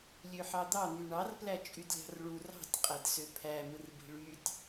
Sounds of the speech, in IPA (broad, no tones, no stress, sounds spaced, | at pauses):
lʲ ø ħ ɑ d̪ ɑ n̪ y ɳ ɑ r p l æ t͡ʃʼ y d lʲ ɑ̤ r ɭ u r ɑ̤ tʲ qʼ æ d s ø pʰ æ m ɯ r b i̤ ɭ y tʲ